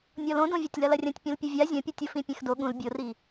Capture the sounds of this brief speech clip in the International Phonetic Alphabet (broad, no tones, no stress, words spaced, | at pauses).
nʲɔlõdõvʲɔtʲ lɐlɐrʲɐ̃tʲ pʲõlpʲɘvʲa zʲɐ̃pʲotʲo fĩpʲɛ̃xdo ɠũl bʲori